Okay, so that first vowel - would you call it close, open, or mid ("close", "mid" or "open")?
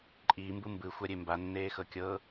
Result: close